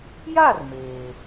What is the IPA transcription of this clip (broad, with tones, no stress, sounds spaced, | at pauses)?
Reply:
j a˦˨ r m eː˨